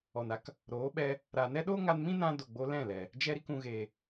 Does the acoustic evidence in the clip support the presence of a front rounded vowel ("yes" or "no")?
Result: no